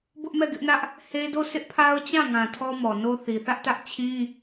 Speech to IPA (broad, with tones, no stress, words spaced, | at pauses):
bʊ˦ʔmɛ˦˨ɡɪ˦ʔnä˦ʔ | he˦do˦˨ sɪ˦ʔpʰa˦ʊ̯ t͡ɕã˦˨ŋã˨ tʰɔ˦mɔ˨ no˦θi˨ θä˦ʔtä˦ʔ t͡ɕʰĩ˦